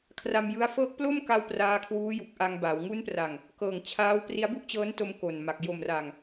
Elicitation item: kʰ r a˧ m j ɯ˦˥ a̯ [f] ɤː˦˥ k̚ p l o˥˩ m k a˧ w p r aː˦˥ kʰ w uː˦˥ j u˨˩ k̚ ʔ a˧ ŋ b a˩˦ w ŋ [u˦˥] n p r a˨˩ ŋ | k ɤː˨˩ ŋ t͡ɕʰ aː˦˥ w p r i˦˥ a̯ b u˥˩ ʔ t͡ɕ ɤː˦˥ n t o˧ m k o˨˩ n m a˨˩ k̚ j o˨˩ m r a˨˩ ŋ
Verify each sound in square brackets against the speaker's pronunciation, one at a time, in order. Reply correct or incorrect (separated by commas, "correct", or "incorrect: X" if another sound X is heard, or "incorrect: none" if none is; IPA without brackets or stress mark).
correct, correct